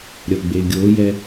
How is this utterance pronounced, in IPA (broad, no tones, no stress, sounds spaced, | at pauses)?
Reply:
ɾʲ ʌ ɡ͡b e ɡʲ o j ɛ